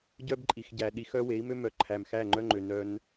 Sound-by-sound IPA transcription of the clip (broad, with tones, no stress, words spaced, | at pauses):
ɟœ˦bǃʼi˨xɟæ˨ ɗi˧xœ˦ we˨˦i̯mø˦mœ˨˦ ǃʰæ˨mxæ˦˨ŋ͡ǃœ˦ŋ͡ǃø˨ nœ˦n